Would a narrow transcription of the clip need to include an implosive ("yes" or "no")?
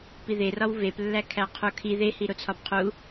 no